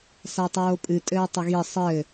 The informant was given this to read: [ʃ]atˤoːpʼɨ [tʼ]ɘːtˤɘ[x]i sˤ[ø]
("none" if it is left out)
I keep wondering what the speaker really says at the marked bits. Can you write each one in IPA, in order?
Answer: s, tʼ, ɣ, ɘ

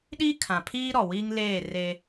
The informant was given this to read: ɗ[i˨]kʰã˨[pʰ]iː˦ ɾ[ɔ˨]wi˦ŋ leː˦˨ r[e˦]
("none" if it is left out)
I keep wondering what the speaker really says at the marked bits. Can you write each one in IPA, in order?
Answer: i˦, pʰ, ɔ˨, e˦

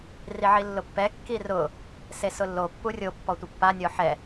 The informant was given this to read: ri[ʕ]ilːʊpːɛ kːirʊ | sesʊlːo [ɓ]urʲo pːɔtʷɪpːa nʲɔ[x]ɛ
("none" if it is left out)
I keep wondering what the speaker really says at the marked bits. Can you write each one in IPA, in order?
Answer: ʕ, pː, ħ

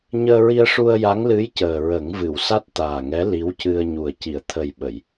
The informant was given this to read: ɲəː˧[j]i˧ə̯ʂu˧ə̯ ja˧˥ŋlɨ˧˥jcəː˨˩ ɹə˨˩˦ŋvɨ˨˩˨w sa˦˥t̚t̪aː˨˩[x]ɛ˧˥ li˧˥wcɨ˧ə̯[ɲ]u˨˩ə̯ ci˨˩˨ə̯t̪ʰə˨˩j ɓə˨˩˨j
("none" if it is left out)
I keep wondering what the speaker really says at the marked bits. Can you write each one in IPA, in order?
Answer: ɹ, ŋ, ɲ

